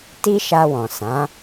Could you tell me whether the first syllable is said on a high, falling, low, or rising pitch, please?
high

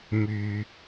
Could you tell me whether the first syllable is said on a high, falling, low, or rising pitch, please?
low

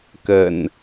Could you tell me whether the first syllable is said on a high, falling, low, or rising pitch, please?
low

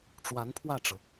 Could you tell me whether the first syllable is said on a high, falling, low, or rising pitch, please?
rising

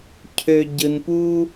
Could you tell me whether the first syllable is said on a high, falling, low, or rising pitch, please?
high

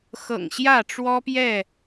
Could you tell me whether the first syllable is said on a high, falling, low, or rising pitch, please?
low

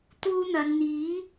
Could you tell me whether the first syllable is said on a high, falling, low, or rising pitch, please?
high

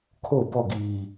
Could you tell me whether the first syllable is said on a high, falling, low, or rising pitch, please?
falling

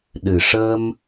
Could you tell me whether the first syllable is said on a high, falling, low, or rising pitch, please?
low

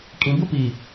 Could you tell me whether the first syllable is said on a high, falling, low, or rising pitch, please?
low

